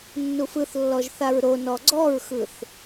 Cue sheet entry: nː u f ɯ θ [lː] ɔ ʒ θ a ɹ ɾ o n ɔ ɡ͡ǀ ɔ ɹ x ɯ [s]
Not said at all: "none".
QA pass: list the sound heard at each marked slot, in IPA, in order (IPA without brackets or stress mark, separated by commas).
lː, θ